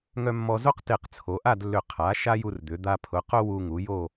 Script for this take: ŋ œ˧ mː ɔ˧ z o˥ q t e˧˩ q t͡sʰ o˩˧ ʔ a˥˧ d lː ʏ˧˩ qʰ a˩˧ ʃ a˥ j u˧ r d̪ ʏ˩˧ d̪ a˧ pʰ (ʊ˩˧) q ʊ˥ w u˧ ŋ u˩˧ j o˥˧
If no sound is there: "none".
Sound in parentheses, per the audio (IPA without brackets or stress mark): ʊ˩˧